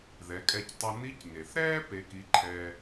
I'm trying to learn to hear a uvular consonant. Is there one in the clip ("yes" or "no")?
no